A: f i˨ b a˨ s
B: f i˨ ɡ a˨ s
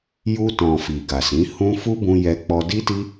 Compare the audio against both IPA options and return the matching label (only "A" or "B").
B